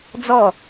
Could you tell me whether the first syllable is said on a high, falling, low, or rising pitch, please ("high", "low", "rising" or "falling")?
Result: falling